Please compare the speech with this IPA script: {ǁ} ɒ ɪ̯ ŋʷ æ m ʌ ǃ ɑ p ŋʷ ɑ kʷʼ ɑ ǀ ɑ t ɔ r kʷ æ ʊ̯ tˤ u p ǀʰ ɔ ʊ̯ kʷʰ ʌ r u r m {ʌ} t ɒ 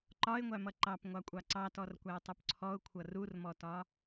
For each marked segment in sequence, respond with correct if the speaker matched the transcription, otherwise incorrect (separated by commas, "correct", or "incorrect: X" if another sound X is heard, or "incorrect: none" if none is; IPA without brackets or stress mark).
incorrect: ǃ, incorrect: ɔ